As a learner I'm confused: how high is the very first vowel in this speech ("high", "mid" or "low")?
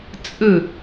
high